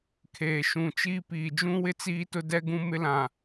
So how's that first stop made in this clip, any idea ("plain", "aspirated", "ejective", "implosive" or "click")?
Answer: aspirated